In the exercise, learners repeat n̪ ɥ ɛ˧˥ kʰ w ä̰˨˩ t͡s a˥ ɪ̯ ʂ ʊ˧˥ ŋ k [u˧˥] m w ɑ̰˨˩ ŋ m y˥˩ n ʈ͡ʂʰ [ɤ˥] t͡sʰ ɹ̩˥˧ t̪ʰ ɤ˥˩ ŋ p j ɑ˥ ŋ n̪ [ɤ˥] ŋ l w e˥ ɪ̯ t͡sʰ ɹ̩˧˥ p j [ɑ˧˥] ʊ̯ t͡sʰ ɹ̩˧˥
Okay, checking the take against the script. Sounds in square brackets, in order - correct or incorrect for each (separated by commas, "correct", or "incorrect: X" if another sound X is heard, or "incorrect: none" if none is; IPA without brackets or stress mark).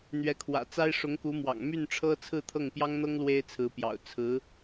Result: correct, correct, correct, incorrect: ɑ̰˨˩